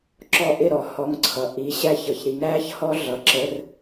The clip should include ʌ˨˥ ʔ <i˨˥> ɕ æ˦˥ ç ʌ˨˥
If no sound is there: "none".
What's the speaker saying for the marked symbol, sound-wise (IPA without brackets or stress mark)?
i˨˥